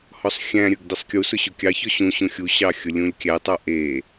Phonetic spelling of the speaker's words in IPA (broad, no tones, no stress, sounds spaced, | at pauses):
h ɔ sˤ xʲ æ̃ ɾʲ ɵ ɡ d i sˤ kʲ u s ʊ ɕ ʊ kʲ ɑ ç ɔ ɕ ũ ɕ ũ xʲ u ɕ ɑ xʲ ʊ lʲ ũ lʲ kʲ æ tˤ ɑ ʔ e